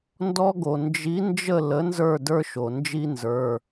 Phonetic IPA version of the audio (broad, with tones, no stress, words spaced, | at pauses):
ndɔ˦ɡo˩ nd͡ʒi˨˥ nd͡ʒə˥˨ lə˨˥ nzə˞˥˨də˞˦ʃo˩nd͡ʒi˦ nzə˞˩˧˩